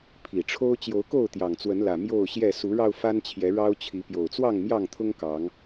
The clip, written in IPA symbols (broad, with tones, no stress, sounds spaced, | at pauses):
pʰ i˨˩ ʈ͡ʂʰ o˦ ʊ̯ t͡ɕ j o˨˦ ʊ̯ k o˥˨ ʊ̯ t̪ j ɑ˨˩ ŋ t͡s w ə˨˦ n l ä˨˩ m j o˥˨ ʊ̯ ɕ j ɛ˥˨ s u˨˦ ɻ ɑ˧ ʊ̯ f a˦ n t͡ɕʰ j ɛ˨˦ ɻ ɑ˦ ʊ̯ t͡ɕʰ i˨˦ p j o˨˩ ʊ̯ t͡s w ɑ˥˨ ŋ m j ɑ˥˨ ŋ t̪ʰ ʊ˦ ŋ k ɑ˨˦ ŋ